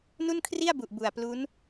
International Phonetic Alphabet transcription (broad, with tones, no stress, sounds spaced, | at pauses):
n u˥˩ n kʰ r i˥˩ a̯ b u˨˩ ʔ b u˨˩ a̯ p l u˦˥ n